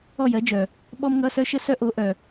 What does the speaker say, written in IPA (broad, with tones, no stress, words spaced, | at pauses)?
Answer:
ɔ˥˧jɜ˨˥d͡ʒœ˨ | ɓɔ˥mŋʌ˧˥˧ sœ˥ʃə˥sœ˥ʔo˨˥ ʔœ˨